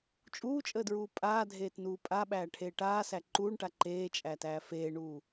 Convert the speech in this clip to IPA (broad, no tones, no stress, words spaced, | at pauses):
t͡ʃʼuːt͡ʃʼəːdɹuː pʼaːdʱeːtnuː pʼaɓæːʈʰeː ʈaːsæ ǃuːɳʈa ǃeːt͡ʃʼætæː feːɳuː